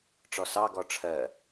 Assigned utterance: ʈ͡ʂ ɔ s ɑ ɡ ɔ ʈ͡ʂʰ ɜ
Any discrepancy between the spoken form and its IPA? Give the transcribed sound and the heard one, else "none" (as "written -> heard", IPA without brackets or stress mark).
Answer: none